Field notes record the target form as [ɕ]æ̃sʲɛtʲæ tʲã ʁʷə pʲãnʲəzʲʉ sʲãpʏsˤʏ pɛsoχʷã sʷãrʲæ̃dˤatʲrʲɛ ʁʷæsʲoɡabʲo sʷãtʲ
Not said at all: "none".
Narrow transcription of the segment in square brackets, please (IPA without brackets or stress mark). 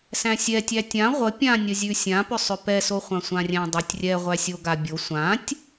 s